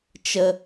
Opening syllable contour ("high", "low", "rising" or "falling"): high